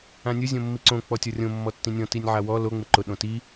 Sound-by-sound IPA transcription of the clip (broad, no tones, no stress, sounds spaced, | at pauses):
ã nʲ ʊ zʲ õ mː i ǀ õ k͡p ɔ tʲ ɔ rʲ õ mː ɔ tː ĩ nʲ ɔ̃ t i nʲ ʕ a w ɔ l o ŋ͡m ɪ ǃ ʊ ɗ õ t i